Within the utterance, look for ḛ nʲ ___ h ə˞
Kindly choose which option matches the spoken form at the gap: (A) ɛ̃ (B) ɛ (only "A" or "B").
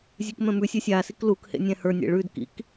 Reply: A